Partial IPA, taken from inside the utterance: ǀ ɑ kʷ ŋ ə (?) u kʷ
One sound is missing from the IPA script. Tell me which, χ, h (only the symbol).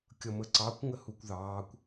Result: h